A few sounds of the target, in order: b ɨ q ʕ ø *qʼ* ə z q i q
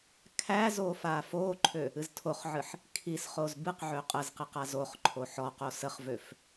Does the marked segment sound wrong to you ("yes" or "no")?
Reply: no